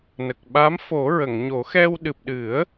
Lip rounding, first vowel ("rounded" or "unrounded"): unrounded